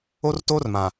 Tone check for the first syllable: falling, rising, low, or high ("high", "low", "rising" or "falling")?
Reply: high